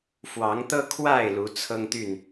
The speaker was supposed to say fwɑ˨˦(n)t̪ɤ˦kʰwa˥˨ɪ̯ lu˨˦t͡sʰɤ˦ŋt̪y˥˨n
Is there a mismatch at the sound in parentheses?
yes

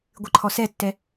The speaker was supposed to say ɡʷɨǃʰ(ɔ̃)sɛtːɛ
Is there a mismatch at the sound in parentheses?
yes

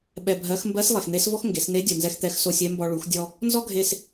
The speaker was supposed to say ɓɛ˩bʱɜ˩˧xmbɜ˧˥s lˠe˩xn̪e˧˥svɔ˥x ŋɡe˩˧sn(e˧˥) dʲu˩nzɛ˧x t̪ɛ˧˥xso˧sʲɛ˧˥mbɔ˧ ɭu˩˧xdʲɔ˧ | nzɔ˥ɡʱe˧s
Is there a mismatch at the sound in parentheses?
no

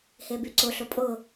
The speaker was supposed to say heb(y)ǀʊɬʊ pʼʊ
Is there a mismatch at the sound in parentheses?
no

